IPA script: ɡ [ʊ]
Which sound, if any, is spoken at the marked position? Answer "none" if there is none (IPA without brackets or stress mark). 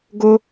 ʊ